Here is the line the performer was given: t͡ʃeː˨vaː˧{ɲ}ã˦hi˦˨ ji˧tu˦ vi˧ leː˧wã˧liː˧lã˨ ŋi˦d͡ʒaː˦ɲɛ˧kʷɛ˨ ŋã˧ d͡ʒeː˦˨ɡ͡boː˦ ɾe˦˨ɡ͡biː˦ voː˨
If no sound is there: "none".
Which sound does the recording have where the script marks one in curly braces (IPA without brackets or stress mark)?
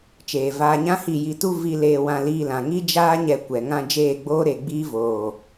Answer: ɲ